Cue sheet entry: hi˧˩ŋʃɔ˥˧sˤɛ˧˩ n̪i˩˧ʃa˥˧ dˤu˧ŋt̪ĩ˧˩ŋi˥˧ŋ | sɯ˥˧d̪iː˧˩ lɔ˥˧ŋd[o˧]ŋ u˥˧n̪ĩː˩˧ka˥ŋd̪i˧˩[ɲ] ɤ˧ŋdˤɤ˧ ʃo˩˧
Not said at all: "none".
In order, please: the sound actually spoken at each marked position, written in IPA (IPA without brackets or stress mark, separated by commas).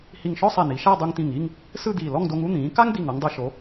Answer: o˧, ŋ